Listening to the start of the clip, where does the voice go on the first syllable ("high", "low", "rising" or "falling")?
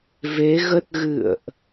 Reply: rising